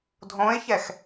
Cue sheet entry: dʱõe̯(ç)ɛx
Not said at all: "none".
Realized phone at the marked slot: ç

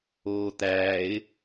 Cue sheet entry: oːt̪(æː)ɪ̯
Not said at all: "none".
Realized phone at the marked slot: æː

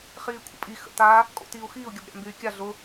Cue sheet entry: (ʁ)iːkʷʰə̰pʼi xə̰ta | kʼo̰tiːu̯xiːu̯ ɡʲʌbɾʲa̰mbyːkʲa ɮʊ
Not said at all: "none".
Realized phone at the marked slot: χ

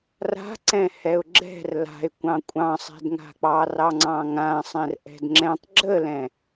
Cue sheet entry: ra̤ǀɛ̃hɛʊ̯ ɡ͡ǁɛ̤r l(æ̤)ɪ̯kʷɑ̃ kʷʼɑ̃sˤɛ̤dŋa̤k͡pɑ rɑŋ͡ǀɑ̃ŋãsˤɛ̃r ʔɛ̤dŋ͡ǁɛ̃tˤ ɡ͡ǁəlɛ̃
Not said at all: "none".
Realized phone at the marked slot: a̤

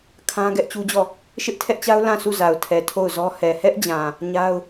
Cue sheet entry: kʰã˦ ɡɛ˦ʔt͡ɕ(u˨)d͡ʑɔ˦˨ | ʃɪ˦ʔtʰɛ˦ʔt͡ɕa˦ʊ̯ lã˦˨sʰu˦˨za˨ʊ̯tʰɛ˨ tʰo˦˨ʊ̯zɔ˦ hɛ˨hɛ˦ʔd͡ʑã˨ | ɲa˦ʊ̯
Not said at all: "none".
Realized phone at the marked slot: u˦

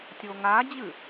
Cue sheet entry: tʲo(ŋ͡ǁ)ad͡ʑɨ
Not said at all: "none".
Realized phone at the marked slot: ŋ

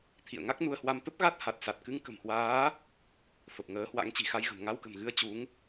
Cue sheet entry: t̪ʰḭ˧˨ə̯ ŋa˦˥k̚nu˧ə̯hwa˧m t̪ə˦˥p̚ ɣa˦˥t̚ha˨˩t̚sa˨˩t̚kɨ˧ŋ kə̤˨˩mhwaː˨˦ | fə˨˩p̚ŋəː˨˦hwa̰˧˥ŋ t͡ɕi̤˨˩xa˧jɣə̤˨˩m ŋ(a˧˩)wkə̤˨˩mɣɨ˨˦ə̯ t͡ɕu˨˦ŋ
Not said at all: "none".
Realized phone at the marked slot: a˧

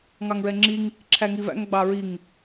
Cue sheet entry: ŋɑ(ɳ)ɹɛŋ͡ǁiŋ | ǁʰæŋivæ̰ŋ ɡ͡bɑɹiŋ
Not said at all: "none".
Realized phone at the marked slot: ŋ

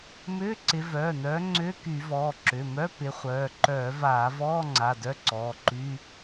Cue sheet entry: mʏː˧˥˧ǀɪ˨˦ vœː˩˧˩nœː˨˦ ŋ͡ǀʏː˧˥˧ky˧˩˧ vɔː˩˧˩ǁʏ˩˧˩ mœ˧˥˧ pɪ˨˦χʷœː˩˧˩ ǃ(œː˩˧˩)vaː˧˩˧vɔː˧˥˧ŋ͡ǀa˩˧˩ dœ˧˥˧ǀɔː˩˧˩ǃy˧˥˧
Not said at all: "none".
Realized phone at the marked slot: œː˧˩˧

